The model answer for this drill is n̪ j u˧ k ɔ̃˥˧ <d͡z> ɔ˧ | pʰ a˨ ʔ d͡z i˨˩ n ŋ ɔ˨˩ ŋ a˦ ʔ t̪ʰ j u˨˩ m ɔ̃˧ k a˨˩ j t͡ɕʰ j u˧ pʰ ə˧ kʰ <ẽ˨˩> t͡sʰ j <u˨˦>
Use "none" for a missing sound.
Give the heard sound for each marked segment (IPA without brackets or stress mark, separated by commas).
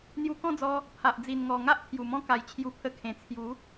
d͡z, ẽ˨˩, u˨˦